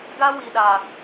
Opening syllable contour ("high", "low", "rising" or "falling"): high